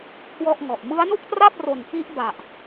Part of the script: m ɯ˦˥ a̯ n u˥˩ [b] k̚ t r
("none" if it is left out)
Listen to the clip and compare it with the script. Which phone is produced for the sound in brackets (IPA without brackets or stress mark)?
none